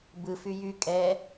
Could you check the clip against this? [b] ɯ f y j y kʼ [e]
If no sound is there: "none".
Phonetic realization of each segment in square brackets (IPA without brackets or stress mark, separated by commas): b, ɛ